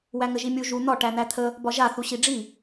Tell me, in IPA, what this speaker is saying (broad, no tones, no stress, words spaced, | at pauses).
wæŋəʒimʲu ʒu n̪ɒ ʈæn̪æt̪ʰə | bɒʒa θuɕiɖ͡ʐi